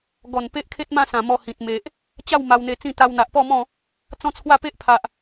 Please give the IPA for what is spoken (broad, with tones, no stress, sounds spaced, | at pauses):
ɡ ɔ˨˩ n p e˦ ʔ kʰ e˦ t̚ m ã˥˧ s ã˨˩ m ɔ˧ h ĩ˨ t̚ m e˨ ʔ | t͡ɕ a˥˧ w m a˧ w n̪ e˧ t͡s ĩ˥˧ t̪ a˧ w n̪ a˨ ʔ p ɔ˥˧ m ɔ̃˥˧ | t͡s ɔ̃˦ t͡sʰ w a˥˧ p e˦ ʔ pʰ a˨ ʔ